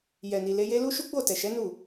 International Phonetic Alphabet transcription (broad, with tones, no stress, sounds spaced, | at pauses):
j ɛ˨ n i˨ l e˧ j e˦ l u˦ ʃ u˦ ɡ͡b o˦˨ t ɛ˨ ʃ ɛ˨˦ n u˦˨